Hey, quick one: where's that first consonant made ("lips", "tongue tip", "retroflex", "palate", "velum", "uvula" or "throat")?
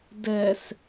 tongue tip